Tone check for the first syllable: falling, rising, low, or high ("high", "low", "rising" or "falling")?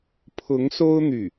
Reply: rising